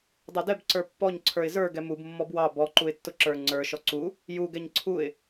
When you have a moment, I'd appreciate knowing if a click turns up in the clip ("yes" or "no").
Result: yes